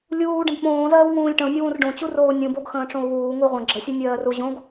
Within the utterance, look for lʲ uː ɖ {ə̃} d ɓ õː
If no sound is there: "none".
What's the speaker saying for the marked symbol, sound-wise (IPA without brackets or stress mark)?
ə̃